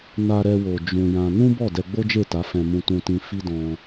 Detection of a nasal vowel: present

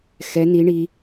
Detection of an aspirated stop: absent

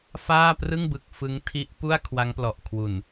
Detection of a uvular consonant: absent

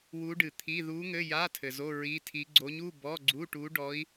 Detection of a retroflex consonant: present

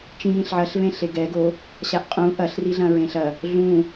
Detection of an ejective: present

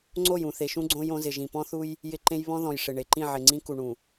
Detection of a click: present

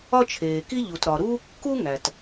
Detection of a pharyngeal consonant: absent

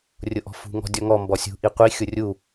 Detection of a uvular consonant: present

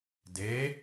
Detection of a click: absent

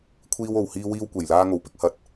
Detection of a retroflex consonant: absent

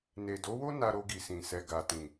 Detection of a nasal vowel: present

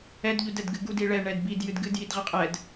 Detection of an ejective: present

